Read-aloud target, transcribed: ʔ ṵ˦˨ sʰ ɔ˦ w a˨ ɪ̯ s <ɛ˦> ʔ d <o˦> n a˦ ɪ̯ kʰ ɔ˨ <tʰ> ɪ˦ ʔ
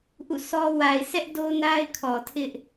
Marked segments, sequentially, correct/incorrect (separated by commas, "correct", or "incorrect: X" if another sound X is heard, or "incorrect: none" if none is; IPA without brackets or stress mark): correct, correct, correct